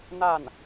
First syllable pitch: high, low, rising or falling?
falling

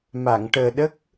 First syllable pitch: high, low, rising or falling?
low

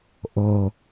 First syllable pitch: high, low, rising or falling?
low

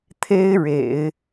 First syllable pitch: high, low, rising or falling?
high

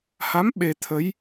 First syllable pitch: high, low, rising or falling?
rising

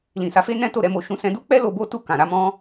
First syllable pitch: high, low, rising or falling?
low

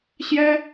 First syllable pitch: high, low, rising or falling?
high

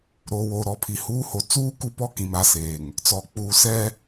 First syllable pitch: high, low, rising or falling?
low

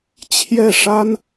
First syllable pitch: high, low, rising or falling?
falling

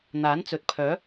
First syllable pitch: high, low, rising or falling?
rising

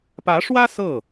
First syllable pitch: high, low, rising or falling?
rising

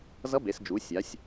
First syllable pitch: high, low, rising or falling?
rising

